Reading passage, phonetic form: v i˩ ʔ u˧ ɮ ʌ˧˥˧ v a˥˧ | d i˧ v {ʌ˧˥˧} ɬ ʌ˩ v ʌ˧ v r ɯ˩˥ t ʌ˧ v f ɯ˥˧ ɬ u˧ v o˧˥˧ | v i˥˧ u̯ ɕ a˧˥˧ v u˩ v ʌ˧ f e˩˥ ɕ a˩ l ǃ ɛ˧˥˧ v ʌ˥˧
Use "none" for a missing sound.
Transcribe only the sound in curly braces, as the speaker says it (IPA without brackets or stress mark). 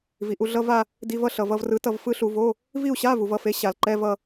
ʌ˥˧